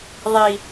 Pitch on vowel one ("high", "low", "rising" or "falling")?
low